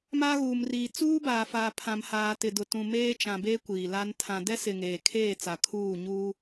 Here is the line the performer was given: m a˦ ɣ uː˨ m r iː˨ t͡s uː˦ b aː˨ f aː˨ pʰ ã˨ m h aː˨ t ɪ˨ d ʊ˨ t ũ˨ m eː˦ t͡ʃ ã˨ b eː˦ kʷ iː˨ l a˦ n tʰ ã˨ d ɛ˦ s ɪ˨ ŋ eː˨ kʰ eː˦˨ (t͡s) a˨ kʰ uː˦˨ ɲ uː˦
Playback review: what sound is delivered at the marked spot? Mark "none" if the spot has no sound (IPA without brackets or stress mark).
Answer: t͡s